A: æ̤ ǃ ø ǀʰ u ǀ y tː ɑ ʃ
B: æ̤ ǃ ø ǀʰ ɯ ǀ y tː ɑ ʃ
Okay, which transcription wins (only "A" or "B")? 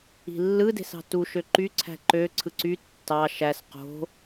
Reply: B